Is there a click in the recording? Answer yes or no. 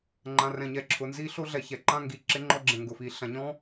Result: yes